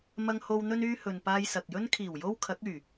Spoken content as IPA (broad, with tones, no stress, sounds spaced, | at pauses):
m ɐ˧ ŋ h o˧ w n̪ ɵ˧ n yː˧ h ɵ˨ n p aː˧ j s ɐ˨ k̚ j ɵ˥ n kʰ iː˨˩ w j o˥ w kʰ ɐ˨˥ k̚ yː˨˩